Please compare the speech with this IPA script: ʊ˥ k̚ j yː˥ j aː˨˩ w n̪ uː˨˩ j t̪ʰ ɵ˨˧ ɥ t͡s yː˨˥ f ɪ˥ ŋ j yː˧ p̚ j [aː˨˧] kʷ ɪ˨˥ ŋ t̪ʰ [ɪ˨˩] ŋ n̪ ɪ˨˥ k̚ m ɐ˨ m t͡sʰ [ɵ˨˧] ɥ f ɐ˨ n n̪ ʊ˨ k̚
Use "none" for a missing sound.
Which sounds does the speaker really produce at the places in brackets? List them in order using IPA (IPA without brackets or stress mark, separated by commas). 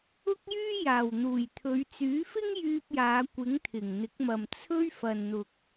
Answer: aː˨˧, ɪ˨˩, ɵ˥